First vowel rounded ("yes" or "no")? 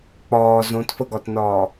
yes